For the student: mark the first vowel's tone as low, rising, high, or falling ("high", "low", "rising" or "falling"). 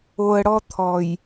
low